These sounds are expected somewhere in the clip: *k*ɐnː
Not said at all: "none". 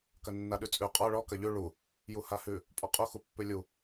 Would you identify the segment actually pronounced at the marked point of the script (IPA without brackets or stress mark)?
k